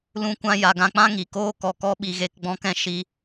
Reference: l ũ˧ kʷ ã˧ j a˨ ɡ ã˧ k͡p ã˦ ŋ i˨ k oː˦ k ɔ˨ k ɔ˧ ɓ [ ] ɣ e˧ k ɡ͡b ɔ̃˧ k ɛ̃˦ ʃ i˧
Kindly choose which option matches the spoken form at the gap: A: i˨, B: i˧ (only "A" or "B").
A